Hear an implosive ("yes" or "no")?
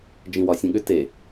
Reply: yes